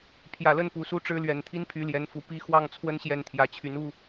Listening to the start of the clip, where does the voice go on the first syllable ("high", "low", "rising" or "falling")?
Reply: low